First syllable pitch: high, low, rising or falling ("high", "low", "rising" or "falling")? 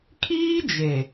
high